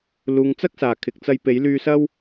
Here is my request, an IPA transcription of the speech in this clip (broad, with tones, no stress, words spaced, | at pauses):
luː˨ŋ t͡sɐ˥k̚saː˨˩ kʰɪ˨k̚t͡sɐ˧jpe˨˥j lyː˧sɐ˥w